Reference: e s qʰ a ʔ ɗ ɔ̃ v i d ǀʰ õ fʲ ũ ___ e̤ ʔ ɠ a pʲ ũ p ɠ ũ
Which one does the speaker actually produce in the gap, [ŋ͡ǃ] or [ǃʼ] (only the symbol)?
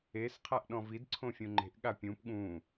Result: ŋ͡ǃ